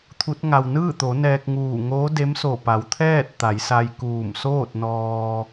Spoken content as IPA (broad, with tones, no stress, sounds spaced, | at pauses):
t̪ʰ u˧˥ t̚ ŋ a˧ w n ɯː˥˨ t̪ o˩˧ n ɛː˧ k̚ ŋ uː˧˩ ŋ oː˧˥ d e˧˥ m s o˧˩ p a˩˧ w t̪ʰ ɛː˥˨ t̚ t̪ a˩˧ j s a˧ j k uː˧˩ m s oː˥˨ t̚ n ɔː˧